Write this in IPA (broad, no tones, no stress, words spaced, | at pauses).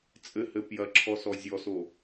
t͡sʼɘhɘ pjɐǁʰɔsɔ zʲɔso